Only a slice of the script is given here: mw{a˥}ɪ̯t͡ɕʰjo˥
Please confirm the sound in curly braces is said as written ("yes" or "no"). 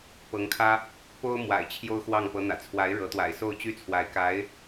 no